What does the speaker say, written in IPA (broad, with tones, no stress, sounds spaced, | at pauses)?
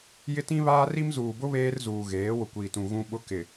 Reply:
j ɪ˦ t ĩ˦ β aː˦ r i˦ m z uː˨ b ʊ˦ β eː˦ r z uː˨ ɣ eː˨˦ w ʊ˨ kʷ iː˨ t ũ˨ ɣ ũ˦ ɓ ʊ˦ k ɪ˨